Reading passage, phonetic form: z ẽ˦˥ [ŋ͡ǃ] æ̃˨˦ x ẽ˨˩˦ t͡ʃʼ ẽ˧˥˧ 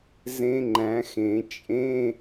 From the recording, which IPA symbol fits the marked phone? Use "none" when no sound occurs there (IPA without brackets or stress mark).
ŋ͡ǃ